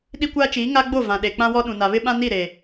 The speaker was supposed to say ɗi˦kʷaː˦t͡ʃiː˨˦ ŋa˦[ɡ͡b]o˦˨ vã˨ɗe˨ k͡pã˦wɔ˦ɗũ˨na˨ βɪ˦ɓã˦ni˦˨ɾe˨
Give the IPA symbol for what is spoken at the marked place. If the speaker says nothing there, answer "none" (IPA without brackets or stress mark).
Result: ɡ͡b